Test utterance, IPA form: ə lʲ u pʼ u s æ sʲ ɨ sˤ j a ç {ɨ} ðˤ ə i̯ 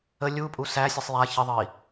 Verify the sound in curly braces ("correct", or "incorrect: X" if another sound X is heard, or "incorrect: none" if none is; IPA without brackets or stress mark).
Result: incorrect: ə